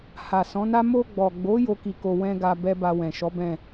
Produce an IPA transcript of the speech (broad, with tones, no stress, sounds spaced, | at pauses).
h a˨ s ɔ̃˨˦ n a˦ m o˧ ɡ͡b ɔ˨ ɡ͡b o˨˦ j o˦ k i˧ k o˧ w ɛ̃˦ ɡ a˧ b ɛ˦ b a˧ w ɛ̃˨ ʃ ɔ˨˦ b ɛ̃˦˨